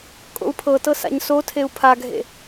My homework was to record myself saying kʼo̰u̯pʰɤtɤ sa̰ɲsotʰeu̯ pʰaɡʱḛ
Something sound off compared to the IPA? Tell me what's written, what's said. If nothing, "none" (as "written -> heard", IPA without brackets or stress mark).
none